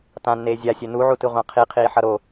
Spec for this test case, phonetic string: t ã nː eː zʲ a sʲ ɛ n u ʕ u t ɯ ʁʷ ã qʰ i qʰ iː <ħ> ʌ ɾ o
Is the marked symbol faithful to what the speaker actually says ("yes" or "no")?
yes